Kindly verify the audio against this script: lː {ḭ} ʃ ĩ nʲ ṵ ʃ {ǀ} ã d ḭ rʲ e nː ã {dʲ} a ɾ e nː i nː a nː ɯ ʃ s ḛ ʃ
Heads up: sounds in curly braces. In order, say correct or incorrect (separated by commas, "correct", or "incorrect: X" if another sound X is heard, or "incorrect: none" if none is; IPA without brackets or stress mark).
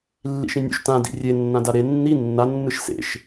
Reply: correct, incorrect: t, incorrect: d